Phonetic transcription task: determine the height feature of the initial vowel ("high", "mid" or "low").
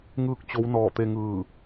high